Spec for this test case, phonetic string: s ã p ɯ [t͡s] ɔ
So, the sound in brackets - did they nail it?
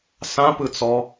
yes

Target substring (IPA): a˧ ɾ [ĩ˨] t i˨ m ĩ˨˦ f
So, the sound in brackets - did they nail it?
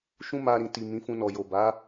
yes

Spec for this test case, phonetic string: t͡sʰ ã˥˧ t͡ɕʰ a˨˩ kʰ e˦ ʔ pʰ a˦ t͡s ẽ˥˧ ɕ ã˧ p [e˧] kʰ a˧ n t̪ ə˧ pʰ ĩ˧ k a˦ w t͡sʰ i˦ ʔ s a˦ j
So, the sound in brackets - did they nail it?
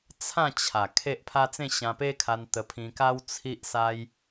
no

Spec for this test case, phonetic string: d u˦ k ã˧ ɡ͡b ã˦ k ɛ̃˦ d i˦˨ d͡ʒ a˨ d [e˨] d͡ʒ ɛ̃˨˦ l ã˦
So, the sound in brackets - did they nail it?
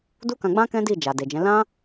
yes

